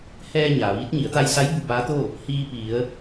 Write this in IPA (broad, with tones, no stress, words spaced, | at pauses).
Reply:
hɛː˧ ɲaː˩ʋiː˧˥t̚ ɲi˩˧ə̯t̪a˧jsa˧˥j bu˧baː˧˥t̪o˥˨ | hiː˧pi˩˧ə̯